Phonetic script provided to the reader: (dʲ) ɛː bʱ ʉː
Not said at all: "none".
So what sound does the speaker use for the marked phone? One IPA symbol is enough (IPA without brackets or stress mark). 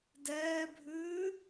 d